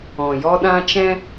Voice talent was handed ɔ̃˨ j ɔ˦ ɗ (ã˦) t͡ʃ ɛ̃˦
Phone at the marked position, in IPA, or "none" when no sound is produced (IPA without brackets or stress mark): ã˦